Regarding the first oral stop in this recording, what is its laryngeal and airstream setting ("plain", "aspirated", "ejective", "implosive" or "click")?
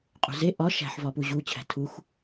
ejective